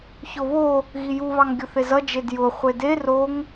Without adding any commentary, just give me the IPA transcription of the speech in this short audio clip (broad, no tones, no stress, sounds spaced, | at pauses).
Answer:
ç o β o | ɣ i j u β ɑ ŋ ɡʲ ʊ θ e z ʌ d͡ʒ e d j ʊ χʷ e d e r o ŋ